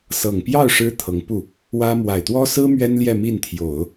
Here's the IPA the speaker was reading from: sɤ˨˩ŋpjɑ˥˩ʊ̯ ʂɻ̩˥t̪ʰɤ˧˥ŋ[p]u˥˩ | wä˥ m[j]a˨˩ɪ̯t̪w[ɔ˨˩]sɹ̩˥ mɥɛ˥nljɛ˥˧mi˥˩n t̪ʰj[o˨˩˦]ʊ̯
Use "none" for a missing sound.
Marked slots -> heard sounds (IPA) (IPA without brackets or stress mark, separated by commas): p, w, ɔ˥, o˨˩˦